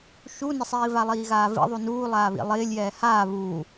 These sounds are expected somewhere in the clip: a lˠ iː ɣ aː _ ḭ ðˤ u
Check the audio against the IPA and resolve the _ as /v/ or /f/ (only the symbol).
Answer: v